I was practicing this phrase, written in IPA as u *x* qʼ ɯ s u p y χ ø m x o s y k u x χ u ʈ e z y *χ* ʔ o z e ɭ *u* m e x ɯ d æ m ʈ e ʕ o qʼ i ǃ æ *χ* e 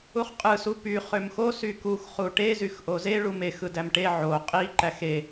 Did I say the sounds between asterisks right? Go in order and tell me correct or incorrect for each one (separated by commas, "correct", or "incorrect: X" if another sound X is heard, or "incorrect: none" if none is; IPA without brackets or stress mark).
incorrect: χ, incorrect: x, correct, incorrect: x